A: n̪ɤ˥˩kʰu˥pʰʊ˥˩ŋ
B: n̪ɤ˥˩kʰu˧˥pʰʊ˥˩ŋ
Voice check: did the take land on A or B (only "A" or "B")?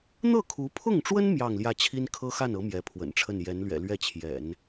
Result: B